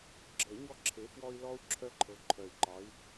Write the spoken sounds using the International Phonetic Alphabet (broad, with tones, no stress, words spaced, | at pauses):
ɡ͡ǁɤ˨˩˦ɲɔ˦ǁʰe˨˦ fwɔ˦i̯lɔ˦u̯ ǁʰœ˦ǃʰɤ˨˦ǃʰœ˨˩i̯ǃɒ˨˦i̯